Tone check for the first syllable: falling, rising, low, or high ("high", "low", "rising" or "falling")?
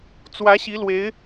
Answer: rising